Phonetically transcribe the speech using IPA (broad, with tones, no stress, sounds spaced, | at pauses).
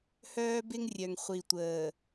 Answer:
h œː˦ b ɪ˦ ŋ rʲ œ˨ ŋ χʷ i˨ tʷ əː˨